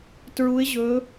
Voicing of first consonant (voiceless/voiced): voiceless